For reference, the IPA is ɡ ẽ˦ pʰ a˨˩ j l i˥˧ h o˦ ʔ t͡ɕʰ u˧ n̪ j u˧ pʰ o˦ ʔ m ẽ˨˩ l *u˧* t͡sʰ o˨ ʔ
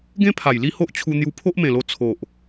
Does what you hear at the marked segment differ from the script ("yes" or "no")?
yes